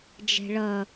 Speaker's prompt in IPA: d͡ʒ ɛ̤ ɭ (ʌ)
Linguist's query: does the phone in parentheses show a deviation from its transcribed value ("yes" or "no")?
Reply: no